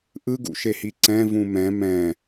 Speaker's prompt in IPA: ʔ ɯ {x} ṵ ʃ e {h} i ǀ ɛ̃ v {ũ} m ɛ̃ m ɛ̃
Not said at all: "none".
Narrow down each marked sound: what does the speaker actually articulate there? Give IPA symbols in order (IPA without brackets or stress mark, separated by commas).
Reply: ɡ, h, ũ